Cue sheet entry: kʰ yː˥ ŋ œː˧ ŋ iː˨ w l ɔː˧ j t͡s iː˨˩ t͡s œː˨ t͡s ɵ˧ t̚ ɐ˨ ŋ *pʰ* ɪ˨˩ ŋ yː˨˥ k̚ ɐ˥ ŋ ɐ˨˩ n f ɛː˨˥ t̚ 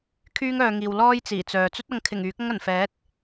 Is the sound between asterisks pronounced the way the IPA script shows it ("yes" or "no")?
no